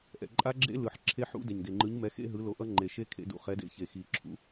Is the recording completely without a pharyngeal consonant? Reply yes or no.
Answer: no